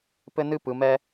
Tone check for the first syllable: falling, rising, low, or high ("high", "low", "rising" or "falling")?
high